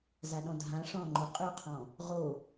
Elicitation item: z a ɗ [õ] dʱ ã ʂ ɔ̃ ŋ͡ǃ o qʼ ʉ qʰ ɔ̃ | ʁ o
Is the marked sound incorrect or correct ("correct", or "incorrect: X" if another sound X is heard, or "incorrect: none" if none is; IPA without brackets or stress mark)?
incorrect: ɔ̃